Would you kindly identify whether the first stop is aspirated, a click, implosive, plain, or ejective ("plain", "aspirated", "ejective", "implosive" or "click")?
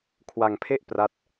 aspirated